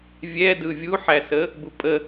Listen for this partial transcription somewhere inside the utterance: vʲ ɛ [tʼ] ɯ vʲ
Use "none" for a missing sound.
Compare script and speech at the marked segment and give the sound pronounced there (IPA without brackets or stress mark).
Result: d